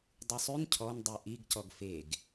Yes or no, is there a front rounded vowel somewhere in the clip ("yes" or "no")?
yes